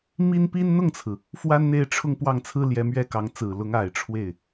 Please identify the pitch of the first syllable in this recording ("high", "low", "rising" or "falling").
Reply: high